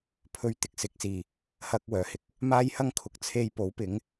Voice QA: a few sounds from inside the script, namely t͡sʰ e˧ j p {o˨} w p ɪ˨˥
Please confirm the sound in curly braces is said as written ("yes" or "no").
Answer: no